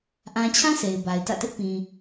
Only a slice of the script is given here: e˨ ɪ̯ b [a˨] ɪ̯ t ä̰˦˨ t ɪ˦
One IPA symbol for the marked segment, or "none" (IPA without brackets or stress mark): a˨